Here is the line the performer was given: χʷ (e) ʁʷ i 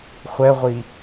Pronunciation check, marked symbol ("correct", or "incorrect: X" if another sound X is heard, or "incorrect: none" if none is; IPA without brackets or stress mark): incorrect: ɛ